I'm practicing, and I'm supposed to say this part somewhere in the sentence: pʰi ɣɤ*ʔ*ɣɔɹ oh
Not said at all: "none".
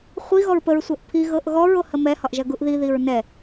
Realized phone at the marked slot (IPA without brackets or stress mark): ʔ